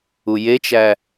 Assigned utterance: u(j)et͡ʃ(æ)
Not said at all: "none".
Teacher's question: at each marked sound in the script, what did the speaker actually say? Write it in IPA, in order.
j, æ

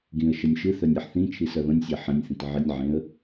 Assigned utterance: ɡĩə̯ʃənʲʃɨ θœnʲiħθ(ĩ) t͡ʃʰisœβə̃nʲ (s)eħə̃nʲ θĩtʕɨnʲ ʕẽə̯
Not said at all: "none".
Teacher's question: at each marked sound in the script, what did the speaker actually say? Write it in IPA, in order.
ĩ, sʲ

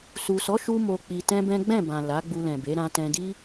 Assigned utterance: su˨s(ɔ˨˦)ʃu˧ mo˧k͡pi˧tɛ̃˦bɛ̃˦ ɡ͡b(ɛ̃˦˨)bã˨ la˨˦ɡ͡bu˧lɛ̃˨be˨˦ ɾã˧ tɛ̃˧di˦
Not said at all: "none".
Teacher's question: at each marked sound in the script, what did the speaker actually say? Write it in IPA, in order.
ɔ˨˦, ɛ̃˦˨

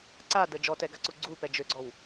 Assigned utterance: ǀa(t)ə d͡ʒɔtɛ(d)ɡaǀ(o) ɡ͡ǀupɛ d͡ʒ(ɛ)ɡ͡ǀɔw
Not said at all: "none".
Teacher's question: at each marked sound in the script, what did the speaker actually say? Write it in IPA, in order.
d, none, u, ø

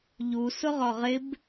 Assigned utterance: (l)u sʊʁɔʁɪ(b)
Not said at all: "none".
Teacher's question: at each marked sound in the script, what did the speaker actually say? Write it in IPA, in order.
ʎ, b

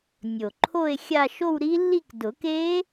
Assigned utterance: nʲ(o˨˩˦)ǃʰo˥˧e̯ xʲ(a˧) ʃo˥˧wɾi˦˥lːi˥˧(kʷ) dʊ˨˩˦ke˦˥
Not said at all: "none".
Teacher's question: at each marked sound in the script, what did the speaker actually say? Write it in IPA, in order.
o˨˩, a˥˧, k

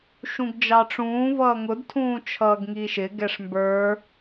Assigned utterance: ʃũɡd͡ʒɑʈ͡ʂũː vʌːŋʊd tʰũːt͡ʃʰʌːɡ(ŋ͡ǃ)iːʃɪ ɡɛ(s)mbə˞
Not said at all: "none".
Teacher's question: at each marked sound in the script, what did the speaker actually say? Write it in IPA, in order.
ŋ, ʂ

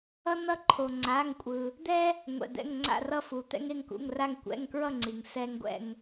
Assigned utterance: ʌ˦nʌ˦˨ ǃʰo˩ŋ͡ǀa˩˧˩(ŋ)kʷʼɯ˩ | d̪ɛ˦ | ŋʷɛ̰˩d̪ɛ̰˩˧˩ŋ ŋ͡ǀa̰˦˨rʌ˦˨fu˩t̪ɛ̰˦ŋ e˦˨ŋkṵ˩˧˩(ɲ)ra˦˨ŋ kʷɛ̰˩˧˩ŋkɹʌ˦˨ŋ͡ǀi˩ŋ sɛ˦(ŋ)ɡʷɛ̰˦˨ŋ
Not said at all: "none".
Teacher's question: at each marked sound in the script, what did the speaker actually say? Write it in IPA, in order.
ŋ, ŋ, ŋ

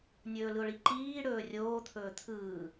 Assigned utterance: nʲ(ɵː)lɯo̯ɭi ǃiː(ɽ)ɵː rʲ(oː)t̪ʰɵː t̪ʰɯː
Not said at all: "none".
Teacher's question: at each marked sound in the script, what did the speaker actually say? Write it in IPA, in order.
ɵː, ɽ, oː

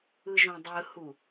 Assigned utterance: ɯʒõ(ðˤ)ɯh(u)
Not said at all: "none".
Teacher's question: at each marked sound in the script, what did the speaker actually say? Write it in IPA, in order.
dˤ, u

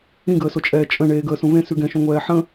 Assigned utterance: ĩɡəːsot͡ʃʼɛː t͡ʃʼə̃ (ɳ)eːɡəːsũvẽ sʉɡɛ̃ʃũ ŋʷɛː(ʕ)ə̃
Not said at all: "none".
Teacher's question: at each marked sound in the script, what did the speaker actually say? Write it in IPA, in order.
ɳ, ħ

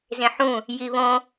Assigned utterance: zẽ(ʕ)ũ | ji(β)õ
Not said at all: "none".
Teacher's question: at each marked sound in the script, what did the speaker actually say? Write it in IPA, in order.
ħ, β

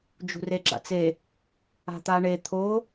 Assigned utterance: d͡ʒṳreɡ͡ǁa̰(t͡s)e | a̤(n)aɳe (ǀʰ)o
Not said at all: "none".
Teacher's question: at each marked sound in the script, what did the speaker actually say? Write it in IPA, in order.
t͡s, t̪, t̪ʰ

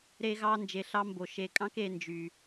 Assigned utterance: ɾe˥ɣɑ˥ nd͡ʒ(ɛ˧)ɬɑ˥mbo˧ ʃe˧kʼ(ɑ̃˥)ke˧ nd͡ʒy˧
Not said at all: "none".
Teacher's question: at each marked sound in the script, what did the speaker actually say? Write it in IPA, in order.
e˧, ɑ̃˥

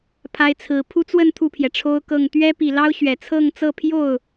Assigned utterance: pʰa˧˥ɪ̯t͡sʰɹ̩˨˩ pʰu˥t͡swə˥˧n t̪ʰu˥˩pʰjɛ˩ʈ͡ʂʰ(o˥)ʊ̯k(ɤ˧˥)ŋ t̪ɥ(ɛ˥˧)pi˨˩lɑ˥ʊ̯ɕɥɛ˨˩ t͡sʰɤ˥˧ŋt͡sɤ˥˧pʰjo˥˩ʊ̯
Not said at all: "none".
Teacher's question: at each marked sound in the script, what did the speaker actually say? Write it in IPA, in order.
o˥, ɤ˥˩, ɛ˥

